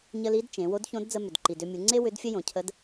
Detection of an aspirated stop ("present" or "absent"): present